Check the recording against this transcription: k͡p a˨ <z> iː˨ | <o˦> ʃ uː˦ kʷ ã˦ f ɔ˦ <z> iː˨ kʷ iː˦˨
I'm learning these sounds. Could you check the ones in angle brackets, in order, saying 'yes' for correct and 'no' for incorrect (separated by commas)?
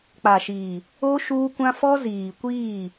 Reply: no, yes, yes